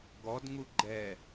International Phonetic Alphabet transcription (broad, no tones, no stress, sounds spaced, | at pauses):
ɡ ɔ d ŋ u ɡ͡ǃ ɛ